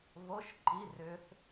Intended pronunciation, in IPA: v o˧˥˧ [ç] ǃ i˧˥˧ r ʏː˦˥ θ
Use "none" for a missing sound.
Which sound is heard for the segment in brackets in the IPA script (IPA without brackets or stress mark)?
ʃ